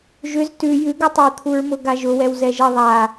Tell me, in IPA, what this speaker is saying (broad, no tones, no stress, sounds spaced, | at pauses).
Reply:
ʒ ʏ z t ʉ j ʉ ɡ ʉ tˤ o u̯ t̪ʰ u ɹ m ʊ ɡ a ʒ ʊ w ɛ w z ɛ ʒ ɛ ðˤ a